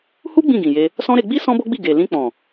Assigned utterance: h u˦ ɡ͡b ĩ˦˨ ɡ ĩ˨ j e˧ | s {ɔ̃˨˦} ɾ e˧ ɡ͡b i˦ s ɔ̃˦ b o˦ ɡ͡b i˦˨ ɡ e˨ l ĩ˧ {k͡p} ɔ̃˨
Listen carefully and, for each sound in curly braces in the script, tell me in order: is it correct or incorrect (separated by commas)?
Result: incorrect, correct